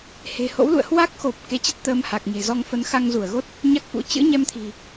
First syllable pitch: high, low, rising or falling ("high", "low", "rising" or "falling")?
low